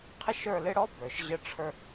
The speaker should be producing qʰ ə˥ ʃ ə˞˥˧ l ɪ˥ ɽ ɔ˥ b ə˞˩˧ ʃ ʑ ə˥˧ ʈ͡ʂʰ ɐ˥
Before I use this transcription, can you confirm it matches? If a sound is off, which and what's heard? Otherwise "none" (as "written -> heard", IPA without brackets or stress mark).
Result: ɐ˥ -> ə˞˥